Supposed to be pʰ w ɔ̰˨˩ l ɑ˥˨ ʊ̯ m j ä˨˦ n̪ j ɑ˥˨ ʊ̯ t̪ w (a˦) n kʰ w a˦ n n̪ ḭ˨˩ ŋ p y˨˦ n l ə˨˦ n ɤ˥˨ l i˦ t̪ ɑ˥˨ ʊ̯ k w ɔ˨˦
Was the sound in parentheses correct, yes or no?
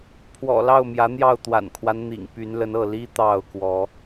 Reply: no